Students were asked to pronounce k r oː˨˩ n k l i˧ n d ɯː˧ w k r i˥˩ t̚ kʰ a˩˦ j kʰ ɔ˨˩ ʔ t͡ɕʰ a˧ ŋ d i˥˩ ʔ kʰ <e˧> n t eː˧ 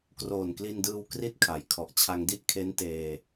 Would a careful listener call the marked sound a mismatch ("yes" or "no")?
yes